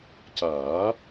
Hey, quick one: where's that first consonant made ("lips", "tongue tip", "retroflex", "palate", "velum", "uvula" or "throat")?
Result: palate